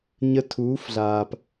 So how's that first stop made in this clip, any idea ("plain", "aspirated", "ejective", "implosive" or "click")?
aspirated